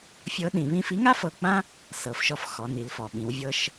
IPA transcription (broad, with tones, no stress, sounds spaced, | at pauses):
fʲ ɤ˧˥ ɗ ĩ˩˧ β ĩ˧ f i˧˥ ŋ a˥ f ɤ˧ k͡p ã˥ | s ɤ˩˧ f ʃ ɔ˧ f x ɔ˩˧ n i˩˧ l f ɔ˩ ɓ ĩ˩˧ w vʲ ɤ˧ ʃ